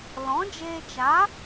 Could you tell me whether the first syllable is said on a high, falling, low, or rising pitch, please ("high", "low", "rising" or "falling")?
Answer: rising